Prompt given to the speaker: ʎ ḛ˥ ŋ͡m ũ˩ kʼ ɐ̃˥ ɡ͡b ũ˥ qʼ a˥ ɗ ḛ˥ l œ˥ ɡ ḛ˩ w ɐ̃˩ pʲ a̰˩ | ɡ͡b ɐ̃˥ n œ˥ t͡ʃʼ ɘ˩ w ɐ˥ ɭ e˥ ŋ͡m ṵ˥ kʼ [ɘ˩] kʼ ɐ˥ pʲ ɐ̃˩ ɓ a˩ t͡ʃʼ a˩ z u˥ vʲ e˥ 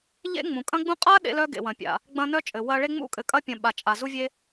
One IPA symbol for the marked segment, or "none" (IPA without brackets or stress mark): ɘ˩